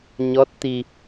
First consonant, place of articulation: palatal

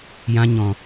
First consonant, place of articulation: palatal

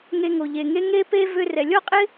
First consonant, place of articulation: velar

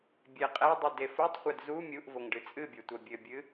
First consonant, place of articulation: labial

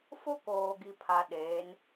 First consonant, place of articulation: labial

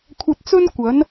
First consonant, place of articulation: velar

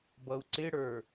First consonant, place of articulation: labial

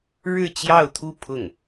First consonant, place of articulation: retroflex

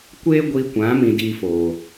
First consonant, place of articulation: velar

